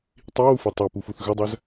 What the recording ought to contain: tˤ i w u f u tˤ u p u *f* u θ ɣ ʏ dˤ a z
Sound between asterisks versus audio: correct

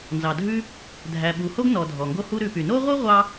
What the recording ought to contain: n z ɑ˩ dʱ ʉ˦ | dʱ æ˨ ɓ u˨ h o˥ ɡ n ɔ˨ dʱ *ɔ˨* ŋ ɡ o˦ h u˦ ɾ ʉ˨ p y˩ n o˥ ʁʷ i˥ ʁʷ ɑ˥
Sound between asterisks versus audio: incorrect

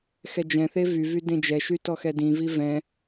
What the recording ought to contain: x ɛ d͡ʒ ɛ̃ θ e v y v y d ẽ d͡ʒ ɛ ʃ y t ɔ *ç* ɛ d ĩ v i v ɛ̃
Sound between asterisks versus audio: incorrect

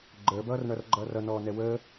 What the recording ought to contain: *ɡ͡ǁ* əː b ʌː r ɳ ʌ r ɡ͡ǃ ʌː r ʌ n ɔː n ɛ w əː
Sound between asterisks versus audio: incorrect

